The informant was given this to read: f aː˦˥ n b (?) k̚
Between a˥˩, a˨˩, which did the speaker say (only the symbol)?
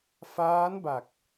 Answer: a˨˩